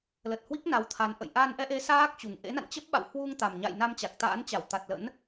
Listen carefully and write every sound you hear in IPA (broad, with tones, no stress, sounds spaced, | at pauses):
l ə˨˩ t̚ h w i˦˥ k̚ n a˨˦ w t̪ʰ a˨˦ n ʔ ə̰˧˨ j ʔ a˧ n ʔ ɛ˧ ʔ e˨˦ s aː˦˥ k̚ t͡ɕ u˨˩ ŋ ʔ ḛ˧˥ n a̰˧˨ n t͡ɕ ə˦˥ p̚ ɓ a̰˧˨ w h w u˧ ŋ t̪ a˨˩ m ɲ a̰˧˨ j n a˧ m t͡ɕ a˨˩ k̚ t̪ a̰ː˧˥ n t͡ɕ a˧˩ w t̪ a˨˩ t̚ l ə̰˧˥ n